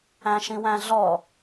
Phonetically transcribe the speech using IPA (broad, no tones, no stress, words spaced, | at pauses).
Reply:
æ̃ʃĩwæ̃ɮɔ